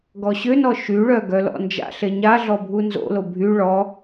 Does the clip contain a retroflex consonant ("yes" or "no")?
yes